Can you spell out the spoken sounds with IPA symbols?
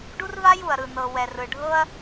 ɖ u˦ r v a˦ j u˨ ɐ̯ ɾ ɯ˨ n ɤ˨ w ɛ˨ r ɯ˨ ɖʱ ɤ˦ ɐ̯

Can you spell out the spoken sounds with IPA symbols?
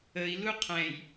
ə i̯ l u qʰ ɛ̃ j

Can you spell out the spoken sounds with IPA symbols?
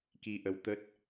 k i˧ ʔ ə˧ w t̪ ə˦˥ t̚

